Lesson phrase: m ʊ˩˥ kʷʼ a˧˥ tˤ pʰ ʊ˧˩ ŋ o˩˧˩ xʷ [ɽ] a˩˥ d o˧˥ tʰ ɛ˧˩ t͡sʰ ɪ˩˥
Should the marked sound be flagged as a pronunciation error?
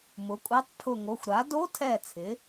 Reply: yes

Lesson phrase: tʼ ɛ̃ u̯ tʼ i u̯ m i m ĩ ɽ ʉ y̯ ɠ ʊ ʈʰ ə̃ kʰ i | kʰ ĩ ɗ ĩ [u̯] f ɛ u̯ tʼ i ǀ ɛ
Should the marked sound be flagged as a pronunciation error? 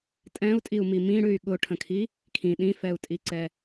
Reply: yes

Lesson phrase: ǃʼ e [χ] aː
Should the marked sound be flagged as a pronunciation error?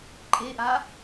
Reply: yes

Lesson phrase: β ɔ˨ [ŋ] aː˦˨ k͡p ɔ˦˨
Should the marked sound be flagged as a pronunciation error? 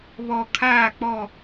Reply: yes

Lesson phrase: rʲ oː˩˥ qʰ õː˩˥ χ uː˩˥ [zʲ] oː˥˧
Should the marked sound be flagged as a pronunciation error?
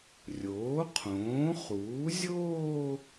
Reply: no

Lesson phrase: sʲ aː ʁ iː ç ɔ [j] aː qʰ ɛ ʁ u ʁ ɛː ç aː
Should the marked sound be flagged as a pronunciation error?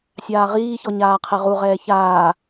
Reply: yes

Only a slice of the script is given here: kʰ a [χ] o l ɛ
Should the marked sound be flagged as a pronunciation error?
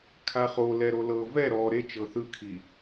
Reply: no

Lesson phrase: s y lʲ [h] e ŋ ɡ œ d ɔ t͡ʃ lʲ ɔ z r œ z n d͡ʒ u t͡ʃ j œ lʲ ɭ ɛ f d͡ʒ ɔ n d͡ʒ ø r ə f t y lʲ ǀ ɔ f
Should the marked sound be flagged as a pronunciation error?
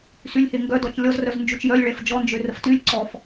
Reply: no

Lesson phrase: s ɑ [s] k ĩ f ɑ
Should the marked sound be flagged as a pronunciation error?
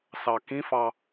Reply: yes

